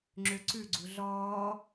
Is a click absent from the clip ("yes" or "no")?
no